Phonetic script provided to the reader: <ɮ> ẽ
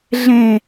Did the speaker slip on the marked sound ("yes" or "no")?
no